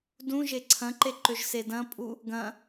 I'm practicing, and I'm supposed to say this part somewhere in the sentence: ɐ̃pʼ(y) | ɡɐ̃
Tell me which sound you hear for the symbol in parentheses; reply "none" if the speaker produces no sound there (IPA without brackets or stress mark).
u